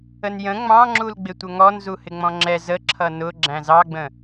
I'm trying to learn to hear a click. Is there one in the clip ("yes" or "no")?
yes